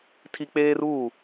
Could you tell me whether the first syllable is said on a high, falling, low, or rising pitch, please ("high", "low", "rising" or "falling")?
high